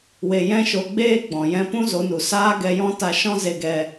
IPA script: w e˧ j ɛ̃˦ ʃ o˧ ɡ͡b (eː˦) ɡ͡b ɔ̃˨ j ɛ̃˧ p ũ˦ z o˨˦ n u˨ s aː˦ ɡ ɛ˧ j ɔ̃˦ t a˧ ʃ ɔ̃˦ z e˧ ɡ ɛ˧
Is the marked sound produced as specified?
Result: yes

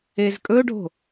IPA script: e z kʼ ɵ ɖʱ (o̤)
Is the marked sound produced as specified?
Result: yes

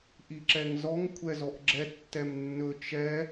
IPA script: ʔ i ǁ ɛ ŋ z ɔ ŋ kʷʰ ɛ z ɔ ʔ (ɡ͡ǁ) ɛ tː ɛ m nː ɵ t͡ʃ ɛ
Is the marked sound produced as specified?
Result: yes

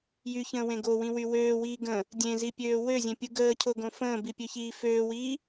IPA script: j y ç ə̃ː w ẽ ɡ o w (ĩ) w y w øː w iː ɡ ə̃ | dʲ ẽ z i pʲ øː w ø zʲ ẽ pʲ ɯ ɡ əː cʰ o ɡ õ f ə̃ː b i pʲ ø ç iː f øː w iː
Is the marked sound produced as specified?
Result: yes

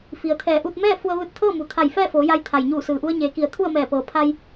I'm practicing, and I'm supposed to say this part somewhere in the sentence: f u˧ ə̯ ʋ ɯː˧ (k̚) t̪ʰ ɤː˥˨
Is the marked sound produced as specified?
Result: no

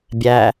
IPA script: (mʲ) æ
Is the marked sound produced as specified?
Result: no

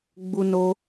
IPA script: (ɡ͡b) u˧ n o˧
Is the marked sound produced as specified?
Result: yes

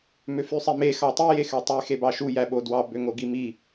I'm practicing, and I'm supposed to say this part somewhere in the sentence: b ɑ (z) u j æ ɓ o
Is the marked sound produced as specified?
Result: no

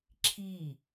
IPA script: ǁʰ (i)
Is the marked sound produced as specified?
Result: yes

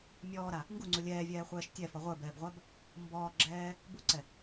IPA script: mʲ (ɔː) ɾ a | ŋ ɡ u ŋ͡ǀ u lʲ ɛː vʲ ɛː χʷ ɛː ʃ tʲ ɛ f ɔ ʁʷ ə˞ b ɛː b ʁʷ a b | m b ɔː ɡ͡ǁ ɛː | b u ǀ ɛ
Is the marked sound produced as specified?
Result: yes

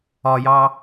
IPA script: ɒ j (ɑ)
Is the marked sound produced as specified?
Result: yes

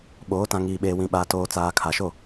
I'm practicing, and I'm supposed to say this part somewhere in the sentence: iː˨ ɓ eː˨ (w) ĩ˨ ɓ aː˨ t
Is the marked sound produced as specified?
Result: yes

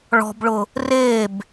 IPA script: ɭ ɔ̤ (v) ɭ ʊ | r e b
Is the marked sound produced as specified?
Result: no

